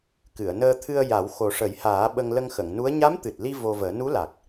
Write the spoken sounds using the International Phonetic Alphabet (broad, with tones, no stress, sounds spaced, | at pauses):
k ɨ˨˩˨ ə̯ n əː˧ t̪ʰ ɨ˧ ə̯ j a˨˩˦ w x o˨˩ ʂ ə˨˩˦ j h aː˨˩˦ ɓ ə˧ ŋ l ə˧ ŋ x ə˨˩˨ ŋ n u˧˥ ə̯ ɲ a˧˥ m t̪ ɨ˨˩ t̚ l i˧ v o˧ v əː˨˩˦ n u˧˥ l a˨˩ k̚